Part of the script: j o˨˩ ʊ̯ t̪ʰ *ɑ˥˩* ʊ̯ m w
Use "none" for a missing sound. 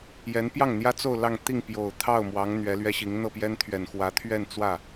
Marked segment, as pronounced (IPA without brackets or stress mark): ɑ˥˩